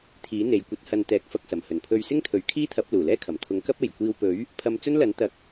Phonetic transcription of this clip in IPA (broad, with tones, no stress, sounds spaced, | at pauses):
t̪ʰ iː˨˥ n̪ e˨˧ j kʷ ɐ˨˥ t̚ h ɐ˧ n t̪ ɛː˨˥ k̚ f ɐ˨ k̚ s ɐ˨˩ m h ɵ˨˩ n pʰ ɵ˧ ɥ s ɪ˥ ŋ t̪ʰ ɵ˨ ɥ kʰ iː˥ t̪ʰ ɐ˨˥ p̚ l uː˨˩ l ɛː˥ kʰ ɐ˨˩ m t̪ʰ ʊ˨˥ ŋ k ɐ˥ p̚ e˨˩ j kʷ iː˧ w p ɵ˨˥ ɥ | pʰ ɐ˧ m t͡s ɵ˥ n l ɐ˨˥ n t̪ ɐ˨˥ k̚